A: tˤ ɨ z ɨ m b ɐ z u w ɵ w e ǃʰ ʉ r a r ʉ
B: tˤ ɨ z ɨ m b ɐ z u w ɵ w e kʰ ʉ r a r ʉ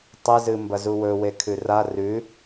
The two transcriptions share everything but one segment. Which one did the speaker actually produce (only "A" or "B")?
B